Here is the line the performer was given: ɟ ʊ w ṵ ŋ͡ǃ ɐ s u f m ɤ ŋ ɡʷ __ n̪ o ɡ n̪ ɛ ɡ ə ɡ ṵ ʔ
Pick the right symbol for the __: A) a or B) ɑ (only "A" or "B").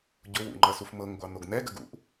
B